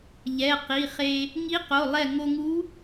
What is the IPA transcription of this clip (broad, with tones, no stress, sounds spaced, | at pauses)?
ʎ ɛ˩˧˩ q i˩˧˩ χ e˧ | ŋ i˧˥ q o˩˧˩ lˠ ɛ˧˩ ŋ o˧ ŋ u˧˥